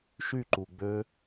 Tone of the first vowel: falling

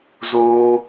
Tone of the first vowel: high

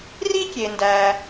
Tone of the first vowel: high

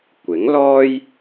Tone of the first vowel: rising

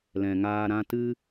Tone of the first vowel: low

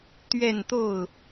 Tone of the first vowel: falling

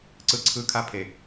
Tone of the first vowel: high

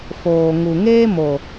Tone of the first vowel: low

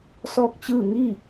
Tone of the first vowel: falling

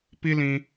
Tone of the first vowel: high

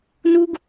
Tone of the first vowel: high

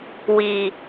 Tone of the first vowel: low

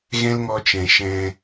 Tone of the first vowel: high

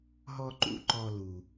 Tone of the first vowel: high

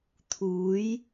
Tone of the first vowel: rising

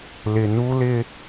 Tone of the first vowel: low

